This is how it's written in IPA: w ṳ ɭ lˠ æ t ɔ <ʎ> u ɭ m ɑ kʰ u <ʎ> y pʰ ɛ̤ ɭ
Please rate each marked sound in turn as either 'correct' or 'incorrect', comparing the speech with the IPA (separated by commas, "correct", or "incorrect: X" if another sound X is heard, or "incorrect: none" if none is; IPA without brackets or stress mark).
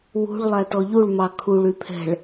correct, incorrect: ɭ